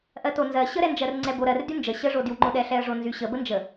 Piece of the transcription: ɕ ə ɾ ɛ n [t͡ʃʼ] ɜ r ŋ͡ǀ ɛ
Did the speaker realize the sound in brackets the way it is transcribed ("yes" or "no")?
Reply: no